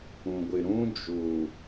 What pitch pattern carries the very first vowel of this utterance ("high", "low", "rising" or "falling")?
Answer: low